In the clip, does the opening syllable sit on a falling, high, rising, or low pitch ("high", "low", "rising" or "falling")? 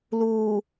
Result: low